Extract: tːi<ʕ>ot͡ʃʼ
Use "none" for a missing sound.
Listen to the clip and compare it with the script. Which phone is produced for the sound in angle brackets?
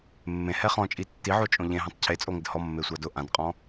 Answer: ʕ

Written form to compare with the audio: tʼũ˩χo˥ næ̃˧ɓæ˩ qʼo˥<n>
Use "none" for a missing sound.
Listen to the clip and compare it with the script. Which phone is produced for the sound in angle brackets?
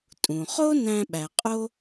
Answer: none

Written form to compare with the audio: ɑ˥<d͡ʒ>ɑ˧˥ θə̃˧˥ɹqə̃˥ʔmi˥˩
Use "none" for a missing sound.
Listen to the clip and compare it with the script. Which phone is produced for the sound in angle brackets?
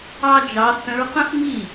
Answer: d͡ʒ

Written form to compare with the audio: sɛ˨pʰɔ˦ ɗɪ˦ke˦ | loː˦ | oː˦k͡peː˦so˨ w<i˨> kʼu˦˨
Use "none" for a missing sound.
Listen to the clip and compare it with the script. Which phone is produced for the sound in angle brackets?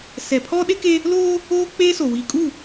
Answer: i˨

